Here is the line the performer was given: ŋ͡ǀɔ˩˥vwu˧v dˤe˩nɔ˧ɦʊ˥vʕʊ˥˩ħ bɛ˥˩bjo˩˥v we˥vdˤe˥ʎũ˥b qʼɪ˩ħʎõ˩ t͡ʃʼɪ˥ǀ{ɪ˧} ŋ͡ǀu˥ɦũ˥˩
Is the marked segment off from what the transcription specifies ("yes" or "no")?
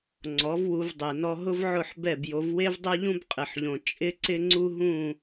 yes